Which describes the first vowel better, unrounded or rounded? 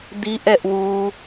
unrounded